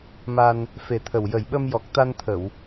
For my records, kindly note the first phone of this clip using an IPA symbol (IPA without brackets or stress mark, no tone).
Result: m